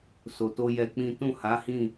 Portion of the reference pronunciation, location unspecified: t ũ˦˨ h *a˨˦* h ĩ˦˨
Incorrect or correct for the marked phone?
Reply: correct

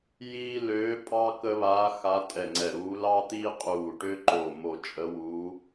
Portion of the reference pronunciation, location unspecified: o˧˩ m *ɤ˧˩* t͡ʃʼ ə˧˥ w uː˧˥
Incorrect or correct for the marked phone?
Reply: incorrect: o˧˩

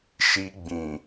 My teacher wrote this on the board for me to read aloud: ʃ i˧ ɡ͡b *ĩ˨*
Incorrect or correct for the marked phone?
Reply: correct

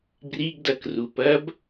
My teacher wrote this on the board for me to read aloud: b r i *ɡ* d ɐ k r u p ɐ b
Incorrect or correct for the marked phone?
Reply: correct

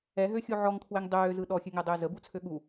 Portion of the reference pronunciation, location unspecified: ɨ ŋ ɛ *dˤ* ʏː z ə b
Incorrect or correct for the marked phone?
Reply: correct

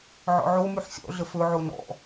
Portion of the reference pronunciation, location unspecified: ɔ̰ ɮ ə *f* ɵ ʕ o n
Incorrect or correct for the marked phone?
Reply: correct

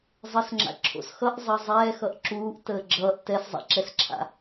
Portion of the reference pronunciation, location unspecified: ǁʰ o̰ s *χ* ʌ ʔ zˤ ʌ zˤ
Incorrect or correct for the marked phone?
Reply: incorrect: x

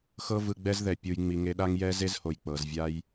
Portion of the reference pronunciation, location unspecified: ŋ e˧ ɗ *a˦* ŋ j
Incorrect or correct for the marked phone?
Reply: correct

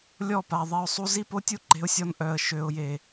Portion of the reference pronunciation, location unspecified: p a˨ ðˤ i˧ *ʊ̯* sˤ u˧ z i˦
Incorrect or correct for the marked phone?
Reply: correct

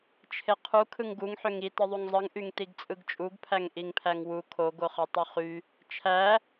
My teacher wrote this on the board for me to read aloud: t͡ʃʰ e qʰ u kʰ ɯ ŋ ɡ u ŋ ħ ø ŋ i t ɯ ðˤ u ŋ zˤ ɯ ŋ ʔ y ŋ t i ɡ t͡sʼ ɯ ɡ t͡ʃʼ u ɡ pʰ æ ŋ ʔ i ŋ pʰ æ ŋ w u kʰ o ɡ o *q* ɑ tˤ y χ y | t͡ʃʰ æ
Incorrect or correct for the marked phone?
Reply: incorrect: χ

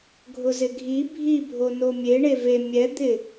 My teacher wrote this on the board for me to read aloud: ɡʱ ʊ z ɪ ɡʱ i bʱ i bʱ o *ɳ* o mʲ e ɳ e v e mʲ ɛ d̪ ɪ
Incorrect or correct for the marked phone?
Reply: incorrect: n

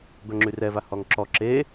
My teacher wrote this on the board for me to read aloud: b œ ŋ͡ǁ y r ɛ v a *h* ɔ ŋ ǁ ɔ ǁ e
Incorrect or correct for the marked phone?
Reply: correct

